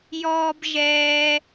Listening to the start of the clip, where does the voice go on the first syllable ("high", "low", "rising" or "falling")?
high